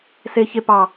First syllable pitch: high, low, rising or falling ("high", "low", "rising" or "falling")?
low